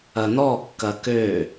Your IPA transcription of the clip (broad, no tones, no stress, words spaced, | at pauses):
ɐnɔkːɐ kø